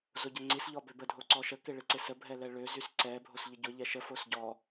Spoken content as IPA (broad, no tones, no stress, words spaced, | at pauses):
zoɟəŋ͡ǀisʎɔ bøbədʱo ǀɔʃəkɪ ɭɪǀɪsəbʱɛ lɛɭøzys ǀɛ bʱosʎəɟʊʎɛ ʃəfos ɟɔ